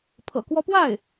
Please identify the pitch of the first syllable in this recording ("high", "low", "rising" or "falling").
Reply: low